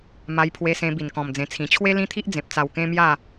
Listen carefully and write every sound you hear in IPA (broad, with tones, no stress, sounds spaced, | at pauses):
m a˧ j pʰ w e˧ s ẽ˧ b i˧ n k ɔ̃˧ m d͡z ẽ˧ t͡sʰ ĩ˧ t͡ɕʰ w e˦ l ĩ˦ t̪ʰ i˦ ʔ d͡z ẽ˨ p̚ t͡s a˧ w k ẽ˦ m j a˥˧